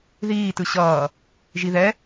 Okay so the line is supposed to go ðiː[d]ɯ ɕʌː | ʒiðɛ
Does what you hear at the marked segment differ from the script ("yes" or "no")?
yes